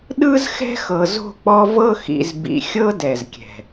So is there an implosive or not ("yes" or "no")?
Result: yes